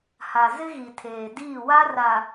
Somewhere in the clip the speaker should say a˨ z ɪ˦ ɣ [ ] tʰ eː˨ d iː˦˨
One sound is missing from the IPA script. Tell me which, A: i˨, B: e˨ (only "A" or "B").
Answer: A